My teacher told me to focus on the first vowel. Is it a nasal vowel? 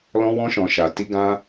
yes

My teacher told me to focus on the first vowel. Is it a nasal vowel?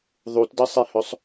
no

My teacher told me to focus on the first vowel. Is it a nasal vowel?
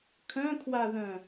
yes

